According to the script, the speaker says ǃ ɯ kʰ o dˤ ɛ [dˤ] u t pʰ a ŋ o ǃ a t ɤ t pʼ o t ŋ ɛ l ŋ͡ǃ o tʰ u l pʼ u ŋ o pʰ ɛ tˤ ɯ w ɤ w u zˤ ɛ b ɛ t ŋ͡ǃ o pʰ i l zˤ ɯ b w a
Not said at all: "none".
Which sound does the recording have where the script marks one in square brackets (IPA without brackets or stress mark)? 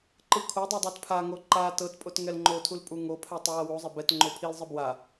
dˤ